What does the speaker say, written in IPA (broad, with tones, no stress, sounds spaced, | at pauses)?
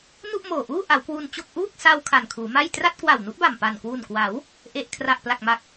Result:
n u˥˩ ʔ m oː˨˩ ʔ uː˥˩ ʔ a˩˦ w k w u˧ n t͡ɕ o˥˩ k̚ ʔ uː˥˩ k̚ s a˧ w kʰ a˨˩ n kʰ uː˩˦ m a˥˩ j t r a˥˩ t̚ k w a˨˩ w n u˦˥ ʔ b a˨˩ m p a˨˩ n k w u˨˩ n k w a˩˦ w | ʔ e˨˩ ʔ kʰ r a˨˩ ʔ p l a˨˩ k̚ m a˨˩ k̚